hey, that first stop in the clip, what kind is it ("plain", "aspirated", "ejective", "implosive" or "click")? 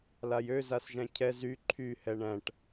aspirated